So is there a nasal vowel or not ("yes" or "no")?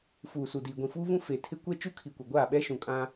yes